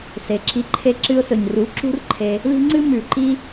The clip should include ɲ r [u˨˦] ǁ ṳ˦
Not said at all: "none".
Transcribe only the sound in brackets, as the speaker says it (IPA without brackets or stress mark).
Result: u˨˦